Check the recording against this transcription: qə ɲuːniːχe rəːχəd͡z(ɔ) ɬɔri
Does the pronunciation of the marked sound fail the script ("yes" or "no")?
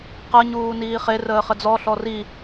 no